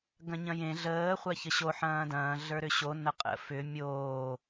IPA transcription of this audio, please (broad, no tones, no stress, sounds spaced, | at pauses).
ɡ ɐ̃ ɲ ɐ̃ j ẽ ɮ əː χʷ a ç ə ɕ o ħ ɐ̃ː d ɐ̃ː ɮ ə˞ ɾ ʏ ɕ o n ɐ qʼ ə̰ f ʏ mʲ oː